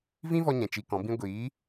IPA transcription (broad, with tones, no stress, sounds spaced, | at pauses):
v ĩ˦ v ɔ˧ ɲ ɛ̃˨ t͡ʃ i˧ k ɔ̃˨˦ b ĩ˦ ɡʷ iː˨˦